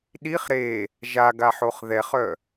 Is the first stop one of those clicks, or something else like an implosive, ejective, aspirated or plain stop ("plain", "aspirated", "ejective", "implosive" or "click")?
implosive